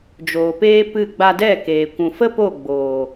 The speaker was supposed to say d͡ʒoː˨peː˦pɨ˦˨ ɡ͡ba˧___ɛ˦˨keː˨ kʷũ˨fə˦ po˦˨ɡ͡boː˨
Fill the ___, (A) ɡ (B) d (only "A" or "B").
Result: B